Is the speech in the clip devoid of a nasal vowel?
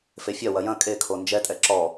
no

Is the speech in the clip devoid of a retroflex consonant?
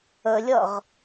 yes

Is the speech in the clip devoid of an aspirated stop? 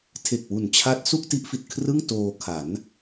no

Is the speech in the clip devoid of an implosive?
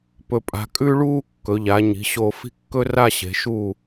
yes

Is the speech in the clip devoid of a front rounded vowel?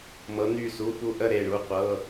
no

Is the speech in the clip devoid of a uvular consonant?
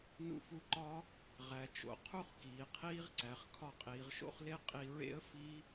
no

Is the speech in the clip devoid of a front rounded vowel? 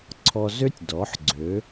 no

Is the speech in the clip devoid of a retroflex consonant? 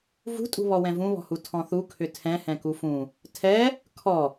yes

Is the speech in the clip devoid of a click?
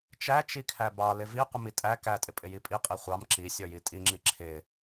no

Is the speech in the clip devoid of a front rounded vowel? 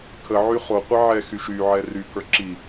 no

